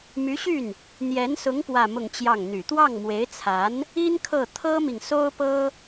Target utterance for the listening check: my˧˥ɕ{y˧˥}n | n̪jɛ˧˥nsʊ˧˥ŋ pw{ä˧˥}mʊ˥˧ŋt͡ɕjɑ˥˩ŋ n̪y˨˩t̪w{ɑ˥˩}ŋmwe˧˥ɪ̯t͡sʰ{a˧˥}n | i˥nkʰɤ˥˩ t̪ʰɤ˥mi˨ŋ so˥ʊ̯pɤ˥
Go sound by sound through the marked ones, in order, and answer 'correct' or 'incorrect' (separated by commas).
incorrect, incorrect, correct, correct